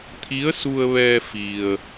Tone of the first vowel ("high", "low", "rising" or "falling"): rising